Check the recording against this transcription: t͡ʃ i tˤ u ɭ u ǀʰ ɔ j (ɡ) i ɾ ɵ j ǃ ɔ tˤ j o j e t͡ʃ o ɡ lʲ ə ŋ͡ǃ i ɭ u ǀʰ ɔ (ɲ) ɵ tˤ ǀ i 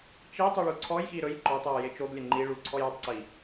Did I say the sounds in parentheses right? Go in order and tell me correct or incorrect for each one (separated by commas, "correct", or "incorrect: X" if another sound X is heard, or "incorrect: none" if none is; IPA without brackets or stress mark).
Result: incorrect: x, incorrect: j